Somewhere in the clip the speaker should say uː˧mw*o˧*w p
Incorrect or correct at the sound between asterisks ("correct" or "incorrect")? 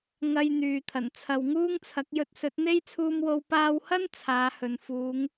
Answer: correct